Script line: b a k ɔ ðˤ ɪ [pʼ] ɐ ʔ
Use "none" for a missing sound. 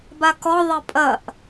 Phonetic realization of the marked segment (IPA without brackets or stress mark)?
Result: pʼ